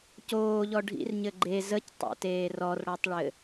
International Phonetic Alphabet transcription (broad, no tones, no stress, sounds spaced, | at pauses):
c oː ʎ ɔ ɖʱ ḭ r ɲ ɘ ɡ͡ǃ e z ə c tˤ o̰ t eː r ɔ r ɽ ɔ tˤ ɭ ɘ